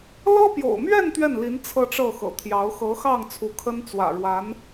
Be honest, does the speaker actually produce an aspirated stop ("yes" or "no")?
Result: yes